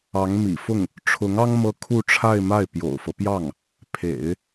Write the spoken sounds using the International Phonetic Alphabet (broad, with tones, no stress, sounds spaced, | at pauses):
ɑ˧˥ ŋ m ḭ˨˩ f ʊ˥˩ ŋ | ʈ͡ʂʰ ʊ˧˥ ŋ ɑ˥ ŋ m ɤ˥ kʰ u˥˧ ʈ͡ʂʰ a˥˧ ɪ̯ m a˥˩ ɪ̯ p j o̰˨˩ ʊ̯ f ɤ˦ p j ɑ˥˩ ŋ | pʰ ḛ˨˩˦ ɪ̯